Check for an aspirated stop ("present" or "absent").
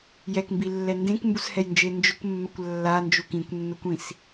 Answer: absent